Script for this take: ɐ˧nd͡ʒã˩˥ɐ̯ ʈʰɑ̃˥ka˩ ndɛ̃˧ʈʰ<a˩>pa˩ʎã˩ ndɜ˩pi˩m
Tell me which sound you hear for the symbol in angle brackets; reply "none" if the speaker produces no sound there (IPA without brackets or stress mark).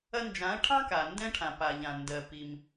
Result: ã˩